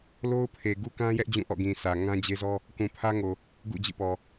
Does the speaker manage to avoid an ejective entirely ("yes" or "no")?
yes